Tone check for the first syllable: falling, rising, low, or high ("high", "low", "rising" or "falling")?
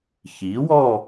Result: rising